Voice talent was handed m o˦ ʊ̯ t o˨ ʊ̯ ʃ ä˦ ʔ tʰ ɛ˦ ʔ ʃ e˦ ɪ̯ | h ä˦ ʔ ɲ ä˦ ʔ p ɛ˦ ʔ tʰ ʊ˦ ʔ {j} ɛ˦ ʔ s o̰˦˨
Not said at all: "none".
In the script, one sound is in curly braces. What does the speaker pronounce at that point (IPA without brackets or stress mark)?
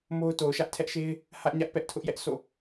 j